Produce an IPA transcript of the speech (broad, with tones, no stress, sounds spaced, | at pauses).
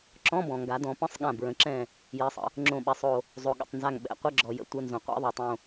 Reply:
ǁ ɔ̃˧˥˧ b ɔ̃˩ ŋ ɡ a˩˧ d ɔ̃˩˧ p ə̃˧˥˧ sˤ ɠ ã˧˩ b ɹ ə̃˩˧ ǁ ɛ̃˧˩ | j ɛ˩˧ sˤ ə̰˩ | ŋ͡ǁ õ˧˩ ɓ ɛ˩˧ sˤ o˩ | zˤ o˩ ɠ ə̰˧˩ tˤ n z a˧˩ ŋ ɓ ɛ̰˧˩ qʷ ə˧˥˧ ɡ͡ǁ ɔ˩ j ə̰˧˩ tʷ ə˧˥˧ n z õ˩ qʷ ɛ̰˦˥ ðˤ o˩ tˤ õ˧˩